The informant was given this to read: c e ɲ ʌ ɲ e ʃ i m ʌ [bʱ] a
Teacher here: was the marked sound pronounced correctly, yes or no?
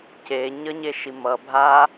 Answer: yes